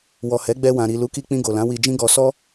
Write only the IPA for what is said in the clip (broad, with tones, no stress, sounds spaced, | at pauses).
w ɔ˨ h ɛ˨˦ ɡ͡b ɛ˧ w ã˨ ɾ i˨ l u˨˦ k i˧ k͡p ĩ˧ ɡ o˨ l ã˨˦ w i˧ d͡ʒ ĩ˦ ɡ ɔ˧ s ɔ˦